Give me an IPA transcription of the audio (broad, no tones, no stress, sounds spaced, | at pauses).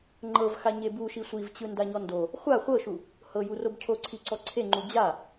ŋ͡ǃ ɤ v x a ɲ e b u ʃ i sʷ i v t͡ɕ ɯ n d a ɲ ɔ n d o | χʷ a χʷ ɤ ʃ u | h ɤ j u r o b cʰ o ǀʰ i ǀ ɔ ǀʰ e ŋ͡ǃ u d͡ʑ a